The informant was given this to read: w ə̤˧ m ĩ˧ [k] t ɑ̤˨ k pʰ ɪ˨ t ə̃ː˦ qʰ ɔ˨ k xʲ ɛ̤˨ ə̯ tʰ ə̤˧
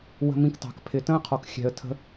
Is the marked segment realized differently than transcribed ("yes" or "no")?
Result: no